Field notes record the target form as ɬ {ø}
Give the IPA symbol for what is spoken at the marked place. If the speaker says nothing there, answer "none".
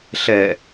ɛ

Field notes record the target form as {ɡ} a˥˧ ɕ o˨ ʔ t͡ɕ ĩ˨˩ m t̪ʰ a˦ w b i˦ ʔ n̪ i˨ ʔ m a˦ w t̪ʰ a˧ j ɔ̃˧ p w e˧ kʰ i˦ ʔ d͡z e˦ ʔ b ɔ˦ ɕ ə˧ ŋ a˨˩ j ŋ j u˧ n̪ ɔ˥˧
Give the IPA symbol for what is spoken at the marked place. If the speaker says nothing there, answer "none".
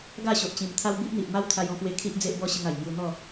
ɡ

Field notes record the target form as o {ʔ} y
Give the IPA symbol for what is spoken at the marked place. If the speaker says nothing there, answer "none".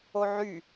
ʕ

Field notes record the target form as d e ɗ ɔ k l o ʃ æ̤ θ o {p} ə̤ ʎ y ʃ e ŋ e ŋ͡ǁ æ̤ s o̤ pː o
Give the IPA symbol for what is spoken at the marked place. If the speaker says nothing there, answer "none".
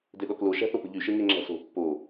p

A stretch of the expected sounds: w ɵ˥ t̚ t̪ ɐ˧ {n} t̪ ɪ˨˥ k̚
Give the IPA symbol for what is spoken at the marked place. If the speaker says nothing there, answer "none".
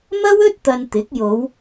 n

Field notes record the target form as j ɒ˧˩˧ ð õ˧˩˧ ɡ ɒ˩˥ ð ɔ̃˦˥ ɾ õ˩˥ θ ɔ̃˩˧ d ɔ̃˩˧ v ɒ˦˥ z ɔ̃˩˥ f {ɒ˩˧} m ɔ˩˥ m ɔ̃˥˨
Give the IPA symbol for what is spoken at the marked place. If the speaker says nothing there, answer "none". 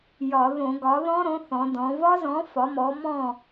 ɒ˩˥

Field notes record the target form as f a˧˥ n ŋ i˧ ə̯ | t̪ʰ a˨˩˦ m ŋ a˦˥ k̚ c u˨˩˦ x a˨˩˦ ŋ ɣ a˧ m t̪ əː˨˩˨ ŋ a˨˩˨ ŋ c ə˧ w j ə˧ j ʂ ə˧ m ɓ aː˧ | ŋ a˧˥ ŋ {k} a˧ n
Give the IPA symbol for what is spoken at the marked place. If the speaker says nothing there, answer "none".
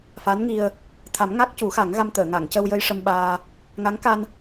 k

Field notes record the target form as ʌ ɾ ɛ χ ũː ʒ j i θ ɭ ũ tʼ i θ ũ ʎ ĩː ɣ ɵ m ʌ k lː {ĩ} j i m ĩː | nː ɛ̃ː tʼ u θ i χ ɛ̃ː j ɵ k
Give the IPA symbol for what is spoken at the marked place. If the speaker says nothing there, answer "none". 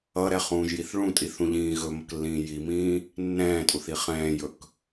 ĩː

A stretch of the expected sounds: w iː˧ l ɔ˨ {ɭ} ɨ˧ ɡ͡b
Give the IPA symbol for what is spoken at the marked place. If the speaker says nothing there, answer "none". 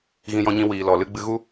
l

